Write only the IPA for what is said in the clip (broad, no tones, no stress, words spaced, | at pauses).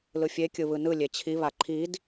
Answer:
lɯfʲe kʲɯβɯnɯ lʲet͡ɕʰi βaǃʰid